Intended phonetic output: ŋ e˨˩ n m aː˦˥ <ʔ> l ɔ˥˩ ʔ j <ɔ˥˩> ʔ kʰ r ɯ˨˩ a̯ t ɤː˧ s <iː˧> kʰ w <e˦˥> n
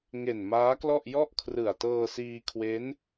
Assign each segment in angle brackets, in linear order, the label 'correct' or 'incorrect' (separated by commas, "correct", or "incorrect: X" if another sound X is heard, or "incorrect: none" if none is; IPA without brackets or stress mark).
incorrect: k, correct, correct, correct